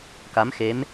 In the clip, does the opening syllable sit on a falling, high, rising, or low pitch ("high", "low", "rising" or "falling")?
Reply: rising